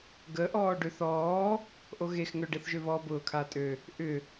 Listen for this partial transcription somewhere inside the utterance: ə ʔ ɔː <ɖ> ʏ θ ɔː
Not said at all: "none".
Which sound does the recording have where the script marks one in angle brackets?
ɖ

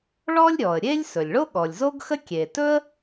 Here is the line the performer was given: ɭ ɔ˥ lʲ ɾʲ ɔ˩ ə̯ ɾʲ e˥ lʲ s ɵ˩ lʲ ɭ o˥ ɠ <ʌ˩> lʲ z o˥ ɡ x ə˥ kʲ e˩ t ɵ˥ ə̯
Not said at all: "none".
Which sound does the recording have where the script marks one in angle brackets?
ɔ˩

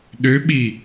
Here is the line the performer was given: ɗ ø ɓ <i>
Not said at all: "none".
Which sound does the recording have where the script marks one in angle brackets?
i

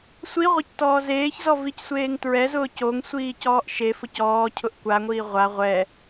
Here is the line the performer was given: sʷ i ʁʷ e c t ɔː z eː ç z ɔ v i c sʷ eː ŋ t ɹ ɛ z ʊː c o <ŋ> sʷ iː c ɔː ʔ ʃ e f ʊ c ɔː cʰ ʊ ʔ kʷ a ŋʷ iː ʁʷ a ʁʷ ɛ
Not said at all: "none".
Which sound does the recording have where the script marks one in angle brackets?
ŋ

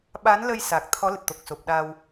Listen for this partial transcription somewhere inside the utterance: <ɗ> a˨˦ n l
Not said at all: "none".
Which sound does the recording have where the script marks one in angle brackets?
ɓ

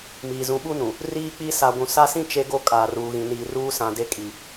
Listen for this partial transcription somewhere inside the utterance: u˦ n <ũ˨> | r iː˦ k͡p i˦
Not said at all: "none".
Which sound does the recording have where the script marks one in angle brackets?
ũ˨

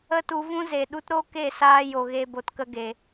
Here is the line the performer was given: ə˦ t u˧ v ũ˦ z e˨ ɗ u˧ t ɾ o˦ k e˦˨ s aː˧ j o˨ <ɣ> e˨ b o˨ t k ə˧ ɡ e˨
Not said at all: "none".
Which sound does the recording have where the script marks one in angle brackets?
ɣ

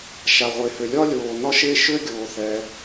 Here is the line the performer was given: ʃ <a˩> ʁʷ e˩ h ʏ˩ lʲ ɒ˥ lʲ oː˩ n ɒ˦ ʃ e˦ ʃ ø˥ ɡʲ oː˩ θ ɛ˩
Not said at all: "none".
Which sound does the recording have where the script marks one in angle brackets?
a˩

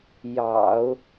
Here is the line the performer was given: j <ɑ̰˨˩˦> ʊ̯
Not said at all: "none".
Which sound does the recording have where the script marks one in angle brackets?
ɑ̰˨˩˦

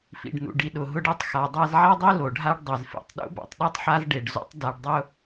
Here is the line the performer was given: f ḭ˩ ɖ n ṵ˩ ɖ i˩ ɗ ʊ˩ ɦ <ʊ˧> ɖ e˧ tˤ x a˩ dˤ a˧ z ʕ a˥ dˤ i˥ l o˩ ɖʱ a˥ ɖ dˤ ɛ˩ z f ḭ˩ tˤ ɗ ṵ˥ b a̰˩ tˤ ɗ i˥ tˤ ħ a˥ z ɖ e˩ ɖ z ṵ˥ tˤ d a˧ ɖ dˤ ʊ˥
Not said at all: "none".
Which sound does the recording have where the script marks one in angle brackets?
ʊ˧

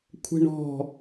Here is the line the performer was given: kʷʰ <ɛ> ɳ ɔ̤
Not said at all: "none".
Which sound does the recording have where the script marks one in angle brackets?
ɛ̤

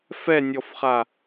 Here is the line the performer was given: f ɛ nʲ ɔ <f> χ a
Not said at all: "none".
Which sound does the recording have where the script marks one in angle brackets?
f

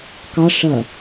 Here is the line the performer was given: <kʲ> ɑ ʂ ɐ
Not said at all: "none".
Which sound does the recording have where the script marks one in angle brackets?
k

